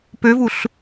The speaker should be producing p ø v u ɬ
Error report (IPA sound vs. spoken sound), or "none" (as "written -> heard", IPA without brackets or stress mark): none